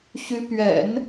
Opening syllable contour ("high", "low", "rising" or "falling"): rising